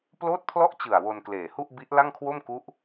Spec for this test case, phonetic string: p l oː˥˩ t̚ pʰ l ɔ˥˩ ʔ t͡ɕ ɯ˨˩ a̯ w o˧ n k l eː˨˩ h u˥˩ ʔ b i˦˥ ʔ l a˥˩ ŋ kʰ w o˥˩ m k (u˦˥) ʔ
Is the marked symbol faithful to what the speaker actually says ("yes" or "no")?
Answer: yes